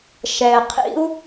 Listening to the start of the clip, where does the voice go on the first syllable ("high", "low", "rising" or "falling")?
low